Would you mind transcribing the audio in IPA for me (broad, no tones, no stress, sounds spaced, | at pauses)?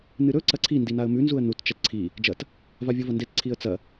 n ɨ ɾ ɵ ǀ ɐ ǀʰ i n d i n a ə̯ m ʉ n z u ə̯ n u t t͡ʃ ɐ t ǀʰ i | d͡ʒ ɐ t | v a vʲ o v ɐ n d e t ǀʰ i ə̯ t͡s ɐ